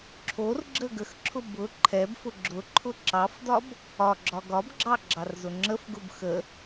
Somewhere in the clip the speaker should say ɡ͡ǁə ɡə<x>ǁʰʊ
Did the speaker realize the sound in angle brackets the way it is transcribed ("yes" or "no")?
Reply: yes